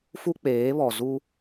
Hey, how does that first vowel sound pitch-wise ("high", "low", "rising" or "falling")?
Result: high